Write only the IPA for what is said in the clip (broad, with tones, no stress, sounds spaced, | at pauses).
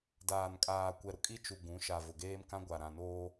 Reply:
d aː˨ n kʼ aː˨ kʷ ɛ˨ ɾ ʊ˨ kʼ i˦ t͡ʃ u˨ ɡ ũ˨˦ ʃ a˨ v ʊ˨ ɡ eː˦ m k ã˦ ɡʷ a˨ ɾ ã˨ n oː˦